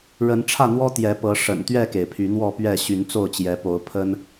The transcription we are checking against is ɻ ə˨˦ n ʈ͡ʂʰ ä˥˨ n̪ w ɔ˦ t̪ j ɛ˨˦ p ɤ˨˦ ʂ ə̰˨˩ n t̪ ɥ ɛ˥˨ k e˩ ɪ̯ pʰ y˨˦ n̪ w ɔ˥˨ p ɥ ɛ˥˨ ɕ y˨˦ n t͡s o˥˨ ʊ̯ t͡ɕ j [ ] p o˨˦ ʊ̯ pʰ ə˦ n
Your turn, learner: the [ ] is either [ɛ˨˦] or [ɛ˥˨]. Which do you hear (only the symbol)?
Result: ɛ˨˦